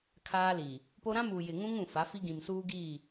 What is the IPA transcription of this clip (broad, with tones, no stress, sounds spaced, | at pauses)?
kʰ aː˦ l iː˨ | p o˦ ɾ ã˦ m uː˨ j ɪ˨ ŋ ũ˦ ŋ ũ˨ f a˨˦ f i˦ ɡ ĩ˨ m s uː˦ ɡ iː˦˨